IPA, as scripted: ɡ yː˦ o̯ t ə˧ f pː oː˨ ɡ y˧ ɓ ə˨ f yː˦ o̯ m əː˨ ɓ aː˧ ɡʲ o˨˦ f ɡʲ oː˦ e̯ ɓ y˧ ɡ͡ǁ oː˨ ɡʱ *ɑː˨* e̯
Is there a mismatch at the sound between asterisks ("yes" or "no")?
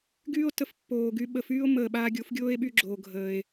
yes